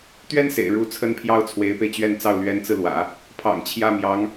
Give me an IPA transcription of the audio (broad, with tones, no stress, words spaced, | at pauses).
t̪ɥɛ˥n sḛ˨˩ɪ̯ ɻu˧˥ t͡sʰə˥npʰjɑ˥ʊ̯ t͡sʰwe˧˥ɪ̯pe˧ɪ̯t͡ɕɥɛ˥˧nt͡sɑ˥˩ʊ̯ lɥɛ˧˥nt͡sɹ̩˧lwä̰˨˩˦ | pʰɑ̰˨˩ŋt͡ɕʰjä˥˩ mjɑ˧˥ŋ